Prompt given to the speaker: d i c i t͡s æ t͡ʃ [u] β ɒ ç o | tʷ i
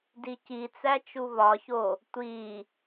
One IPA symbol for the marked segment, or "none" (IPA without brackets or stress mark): u